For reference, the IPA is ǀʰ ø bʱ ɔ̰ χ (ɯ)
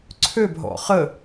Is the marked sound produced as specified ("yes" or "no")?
no